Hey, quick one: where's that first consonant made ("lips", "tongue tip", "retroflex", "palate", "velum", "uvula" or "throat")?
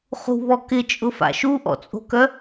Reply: uvula